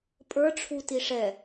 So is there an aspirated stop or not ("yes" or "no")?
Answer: yes